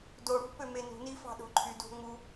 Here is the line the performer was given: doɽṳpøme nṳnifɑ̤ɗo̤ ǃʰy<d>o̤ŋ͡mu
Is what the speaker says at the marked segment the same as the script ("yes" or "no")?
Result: yes